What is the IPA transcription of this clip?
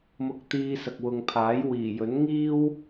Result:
m ʊ˧ k̚ t̪ iː˧ s ɐ˨ k̚ w ʊ˨ ŋ pʰ aː˨˥ j w iː˨˩ j ɵ˨˥ n ŋ iː˥ w

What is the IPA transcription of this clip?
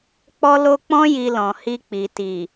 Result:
k͡p ɔ˧ l o˧ k͡p ɔ̃˧ j i˨ l ɔ̃˨ h i˧ k͡p i˨ t i˨

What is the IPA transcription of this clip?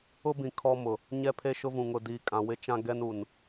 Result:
ʊ˦ b ĩ˨ kʰ ɔ˦ m ʊ˨ | ɲ ɛ˦ pʰ e˦ ʃ ʊ˦ v ũ˨ ŋ ʊ˨ d iː˨ kʼ ã˨ w ɪ˦ t͡ʃ ã˦ ɡ ɛ˦ n u˨ n

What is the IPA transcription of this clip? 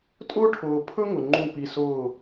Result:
tʼ ʊː˦ ʈʰ ʊː˨ pʰ ɵ˦ ŋ ʊ˨ ŋ͡ǃ ũ˦˨ p i˧ s ʊː˦˨

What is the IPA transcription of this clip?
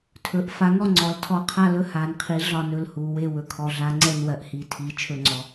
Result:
tʰ ɵ˩˧ ʔ f a˩˥ ŋ ɔ˦˨ ŋ͡ǀ ɔ˩˥ l tʰ ɔ˦˨ qʰ a˦˨ l ɵ˦˨ h a˩˧ n qʰ i˩˥ ɮ ɒ˦˨ n ɵ˦˨ l h u˩˧ w e˦˨ w ɵ˩˧ kʰ ɔ˩˧ ɮ a˩˥ ŋ͡ǀ ɛ˦˨ n w ɜ˩˥ ʔ h i˩˧ tʰ i˩˧ t͡ʃʰ ɵ˦˨ ŋ͡ǀ ɔ˩˧

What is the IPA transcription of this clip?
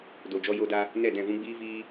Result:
d o˨ d͡ʒ ɔ˧ j o˧ d a˧ | n ɛ˦˨ d ɛ̃˦˨ v ũ˦ ɡ͡b iː˦ v iː˦

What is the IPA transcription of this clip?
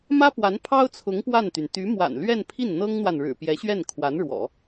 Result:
m ä˥ p w a˧˥ n pʰ ɑ˥ ʊ̯ t͡sʰ ʊ˧˥ ŋ p w a˥˩ n t̪ y˩ n t̪ y˧˥ m w a̰˨˩ n l ɥ ɛ˥˧ n pʰ i˥˩ n n̪ ɤ˥ ŋ n̪ w a˨ n ɻ ɻ̩˨˩ p j ɛ˧˥ ɕ ɥ ɛ˥˩ n kʰ w a˧˥ n ɻ w ɔ̰˨˩˦

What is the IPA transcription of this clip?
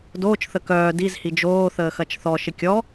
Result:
d oː t͡ʃ θ ə k œː d i z h i d͡ʒ oː θ əː x ɐ t͡ʃ θ ɔ ʃ ɪ kʲ ɔ

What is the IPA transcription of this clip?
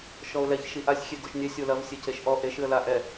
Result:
ʃ ɔ ʊ̯ l ɛ ç ʃ i ʔ a sʲ xʲ e ɡ o ʃ nʲ ɛ sʲ o l ɐ v sʲ e c e ʃ ʔ ɔ ʔ e ʃ ɨ ə̯ l a ʔ ɛ

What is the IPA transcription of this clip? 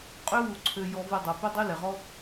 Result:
qʼ ø˦ w u˧ ǀʰ ø˧ j ɔ˧ v i˧ dˤ o˨ p ø˦ dˤ y˦ l ɛ˨ ʁ ɔ˦

